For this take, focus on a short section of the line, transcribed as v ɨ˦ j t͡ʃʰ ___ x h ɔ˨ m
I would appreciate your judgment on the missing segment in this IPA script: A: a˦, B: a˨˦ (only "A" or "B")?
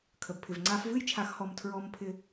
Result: B